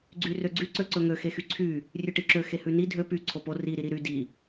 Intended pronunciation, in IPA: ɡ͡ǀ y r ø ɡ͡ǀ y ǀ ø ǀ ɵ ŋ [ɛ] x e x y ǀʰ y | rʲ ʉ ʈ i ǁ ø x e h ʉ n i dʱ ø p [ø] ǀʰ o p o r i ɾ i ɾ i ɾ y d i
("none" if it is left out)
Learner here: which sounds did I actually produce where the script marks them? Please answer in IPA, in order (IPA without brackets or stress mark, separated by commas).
ø, y